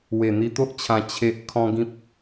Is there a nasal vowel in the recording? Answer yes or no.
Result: yes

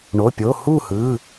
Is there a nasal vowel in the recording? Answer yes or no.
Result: no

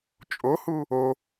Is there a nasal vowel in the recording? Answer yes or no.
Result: no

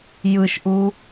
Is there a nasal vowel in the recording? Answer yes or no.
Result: no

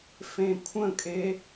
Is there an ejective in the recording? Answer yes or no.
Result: yes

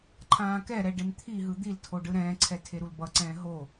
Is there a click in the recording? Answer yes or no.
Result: yes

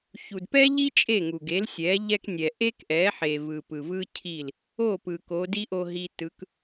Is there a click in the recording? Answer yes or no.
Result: no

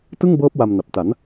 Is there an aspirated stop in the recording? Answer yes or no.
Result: no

